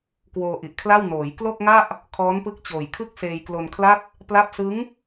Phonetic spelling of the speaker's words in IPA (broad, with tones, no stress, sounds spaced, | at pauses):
k w oː˧ ʔ i˨˩ ʔ kʰ l a˥˩ w n oː˩˦ j k l o˥˩ k̚ ŋ a˥˩ ʔ | kʰ ɔː˦˥ n p ɯ˦˥ k̚ t͡ɕ oː˨˩ j kʰ ɯ˥˩ k̚ s eː˧ j k l o˧ n kʰ l a˥˩ t̚ | p l a˦˥ p̚ s ɯ˦˥ ŋ